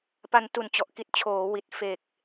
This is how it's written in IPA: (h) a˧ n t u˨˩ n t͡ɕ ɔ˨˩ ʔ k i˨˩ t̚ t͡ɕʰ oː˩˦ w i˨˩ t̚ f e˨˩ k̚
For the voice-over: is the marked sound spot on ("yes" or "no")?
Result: no